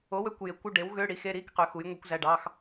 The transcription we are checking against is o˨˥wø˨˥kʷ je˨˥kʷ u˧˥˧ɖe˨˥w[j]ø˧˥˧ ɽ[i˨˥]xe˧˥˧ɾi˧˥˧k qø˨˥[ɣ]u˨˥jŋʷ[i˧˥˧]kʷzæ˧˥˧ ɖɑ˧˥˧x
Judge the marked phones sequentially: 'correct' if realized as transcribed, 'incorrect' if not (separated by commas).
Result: incorrect, correct, incorrect, incorrect